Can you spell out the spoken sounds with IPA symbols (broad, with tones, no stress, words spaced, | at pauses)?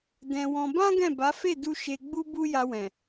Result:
dɛ̃˧wɔ̃˧ bã˦ ɡɛ̃˦˨ba˨˦ fe˦˨du˧ ʃe˧ɡ͡bu˦ bu˦ja˧wɛ̃˨